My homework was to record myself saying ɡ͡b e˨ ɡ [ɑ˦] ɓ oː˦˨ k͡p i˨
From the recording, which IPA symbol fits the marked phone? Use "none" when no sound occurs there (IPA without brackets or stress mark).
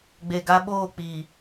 a˦